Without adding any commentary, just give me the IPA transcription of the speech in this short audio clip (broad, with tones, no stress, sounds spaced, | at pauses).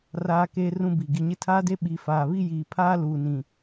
r aː˦ k eː˦ r ũ˦ b i˨ ɡ i˨ ɲ ɪ˦ tʰ aː˦ d e˦ ɓ i˨ f aː˨ β i˦ j iː˨ pʰ aː˦ l uː˨ n ĩ˨